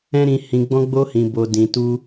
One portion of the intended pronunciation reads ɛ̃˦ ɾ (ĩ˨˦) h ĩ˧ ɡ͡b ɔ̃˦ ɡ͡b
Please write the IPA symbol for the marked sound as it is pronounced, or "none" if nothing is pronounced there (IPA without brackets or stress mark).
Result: ĩ˧